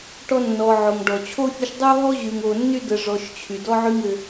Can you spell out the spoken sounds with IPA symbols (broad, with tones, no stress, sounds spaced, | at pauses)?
ʈ ɔ˦ nː ɔ˨ ʕ o˩ ŋ ɖ ɔ˩ t͡ɕʰ o˥ fʲ ə˦ ʃ dˤ o˥ ɦ ɔ˥ ʑ y˨ ŋ o˨ nː y˥ d ə˨ ʐ ɔ˨ ʃ t͡ɕʰ y˩ d ɔ˥ ʕ y˦ ŋ ɘ˨